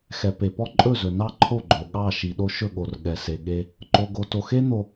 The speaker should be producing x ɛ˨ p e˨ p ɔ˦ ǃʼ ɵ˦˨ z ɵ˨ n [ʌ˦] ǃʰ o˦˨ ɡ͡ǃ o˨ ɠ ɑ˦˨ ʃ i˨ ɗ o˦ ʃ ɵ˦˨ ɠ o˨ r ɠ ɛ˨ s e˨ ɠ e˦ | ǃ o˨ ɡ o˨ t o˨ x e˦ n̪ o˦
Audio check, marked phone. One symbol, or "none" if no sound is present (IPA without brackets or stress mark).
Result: ɑ˦